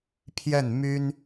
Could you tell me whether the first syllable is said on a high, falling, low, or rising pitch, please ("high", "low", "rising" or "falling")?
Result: falling